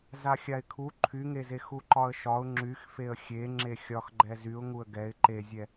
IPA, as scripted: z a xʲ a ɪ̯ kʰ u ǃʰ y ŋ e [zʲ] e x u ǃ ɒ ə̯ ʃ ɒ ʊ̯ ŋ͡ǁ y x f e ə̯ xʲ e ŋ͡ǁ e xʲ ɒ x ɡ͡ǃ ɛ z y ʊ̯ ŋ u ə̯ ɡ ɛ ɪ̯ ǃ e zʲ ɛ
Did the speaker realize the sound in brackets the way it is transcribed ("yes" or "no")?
no